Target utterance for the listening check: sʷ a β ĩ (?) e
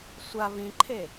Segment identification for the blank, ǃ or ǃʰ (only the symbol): ǃʰ